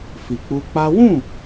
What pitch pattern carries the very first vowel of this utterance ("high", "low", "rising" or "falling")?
low